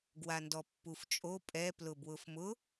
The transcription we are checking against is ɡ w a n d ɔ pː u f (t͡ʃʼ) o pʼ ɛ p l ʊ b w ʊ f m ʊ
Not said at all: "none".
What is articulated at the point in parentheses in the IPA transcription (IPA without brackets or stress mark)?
t͡ʃʼ